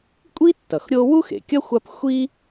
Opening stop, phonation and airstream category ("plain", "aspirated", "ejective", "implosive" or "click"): ejective